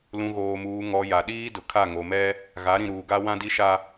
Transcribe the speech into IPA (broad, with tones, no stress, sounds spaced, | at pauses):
l ũ˨ ɣ oː˨ m uː˨ ŋ ɔ˨ j a˨ ɗ iː˦ d ʊ˨ kʰ a˦˨ ŋ o˨ m ɛ˦ | ɣ a˨˦ ɾ ĩ˨ ɾ uː˨ ɡ a˦ w ã˦ d i˦ ʃ a˦